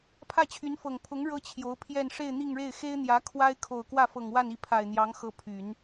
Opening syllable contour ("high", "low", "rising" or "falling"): falling